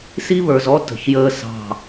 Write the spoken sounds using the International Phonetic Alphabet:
s i˦ β ə˞˨ z ɔ˦ t ə̤˨ ç j əː˦ s ɑ̤˦˨

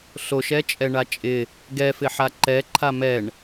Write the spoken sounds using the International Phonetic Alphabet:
ɬ o ʃ ɛ t͡ʃʼ ɛ ɳ a t͡ʃʼ ɪ | ɡ ɛ f ɪ ħ a ǃ ɛ ǃʰ a m ɛ ɳ

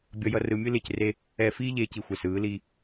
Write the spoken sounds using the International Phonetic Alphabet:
bʲ ʌ˨ j ʌ˨ r ɯ˨ mʲ ɯ˦ l e˨ c r e˦ | ɛ˨ f iː˦ ʎ eː˨ c i˨ xʷ ɛ˨ s ɯː˨˦ l iː˦

